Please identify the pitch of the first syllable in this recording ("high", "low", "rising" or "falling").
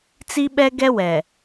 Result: high